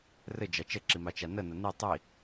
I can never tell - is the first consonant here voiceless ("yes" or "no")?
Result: no